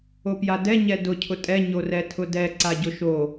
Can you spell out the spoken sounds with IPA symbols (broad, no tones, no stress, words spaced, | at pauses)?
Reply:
opjadɛ ɲɛdʊ cʰʊtʼɛ ɲorɛtʰʊdɛ ǀaɟʊʃo